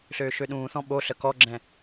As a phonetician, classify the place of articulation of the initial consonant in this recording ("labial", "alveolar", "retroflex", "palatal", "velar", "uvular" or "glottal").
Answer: alveolar